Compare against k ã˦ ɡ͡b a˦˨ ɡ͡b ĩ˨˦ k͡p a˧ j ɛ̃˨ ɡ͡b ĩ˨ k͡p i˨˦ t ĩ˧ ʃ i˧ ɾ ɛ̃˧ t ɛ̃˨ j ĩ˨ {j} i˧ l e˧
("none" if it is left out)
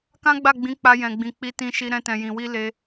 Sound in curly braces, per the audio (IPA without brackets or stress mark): w